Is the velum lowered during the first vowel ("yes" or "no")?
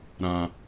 yes